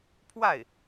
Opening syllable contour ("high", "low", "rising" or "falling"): falling